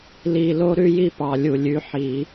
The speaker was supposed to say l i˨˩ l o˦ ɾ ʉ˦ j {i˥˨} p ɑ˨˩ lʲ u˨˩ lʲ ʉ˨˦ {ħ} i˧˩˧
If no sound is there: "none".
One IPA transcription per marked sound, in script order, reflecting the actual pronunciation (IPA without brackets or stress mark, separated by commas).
i˥˨, ħ